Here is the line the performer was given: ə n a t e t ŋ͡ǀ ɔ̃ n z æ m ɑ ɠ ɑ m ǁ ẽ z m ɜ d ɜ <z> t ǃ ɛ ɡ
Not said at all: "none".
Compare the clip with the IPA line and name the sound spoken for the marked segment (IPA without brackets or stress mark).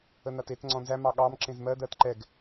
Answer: none